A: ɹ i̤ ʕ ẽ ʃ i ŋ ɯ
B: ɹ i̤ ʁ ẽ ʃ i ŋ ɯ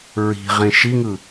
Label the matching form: B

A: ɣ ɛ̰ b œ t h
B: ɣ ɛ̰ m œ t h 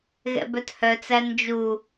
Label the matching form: A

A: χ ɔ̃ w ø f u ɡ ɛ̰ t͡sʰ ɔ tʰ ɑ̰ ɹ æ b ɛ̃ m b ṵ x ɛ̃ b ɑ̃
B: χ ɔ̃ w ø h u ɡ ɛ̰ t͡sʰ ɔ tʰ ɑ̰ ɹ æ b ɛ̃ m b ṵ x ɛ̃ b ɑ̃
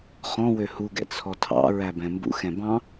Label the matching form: B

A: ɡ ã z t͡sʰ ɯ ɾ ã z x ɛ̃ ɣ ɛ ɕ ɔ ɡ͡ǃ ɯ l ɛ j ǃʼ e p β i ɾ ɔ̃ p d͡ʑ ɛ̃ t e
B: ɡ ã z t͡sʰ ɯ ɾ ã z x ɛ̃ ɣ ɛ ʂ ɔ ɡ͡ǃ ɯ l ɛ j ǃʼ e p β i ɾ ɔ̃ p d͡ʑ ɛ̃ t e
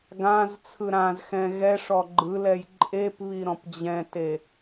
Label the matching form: B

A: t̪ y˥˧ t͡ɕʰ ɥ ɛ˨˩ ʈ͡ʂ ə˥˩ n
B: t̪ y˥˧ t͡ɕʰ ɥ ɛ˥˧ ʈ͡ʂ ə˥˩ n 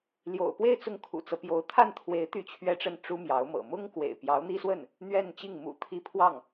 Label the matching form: B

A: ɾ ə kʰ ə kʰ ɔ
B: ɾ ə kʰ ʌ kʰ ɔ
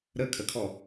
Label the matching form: A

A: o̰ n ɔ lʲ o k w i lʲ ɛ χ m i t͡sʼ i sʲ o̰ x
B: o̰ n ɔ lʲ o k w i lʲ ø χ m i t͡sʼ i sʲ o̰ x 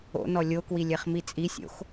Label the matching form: A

